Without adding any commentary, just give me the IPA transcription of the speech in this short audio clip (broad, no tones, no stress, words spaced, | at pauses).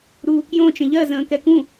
ɾuːkjõt͡ʃə̃ ʎɜzə̃ː kɛkũ